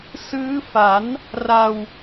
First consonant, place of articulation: alveolar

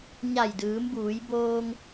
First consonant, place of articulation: palatal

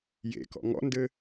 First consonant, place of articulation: palatal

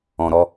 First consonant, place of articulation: alveolar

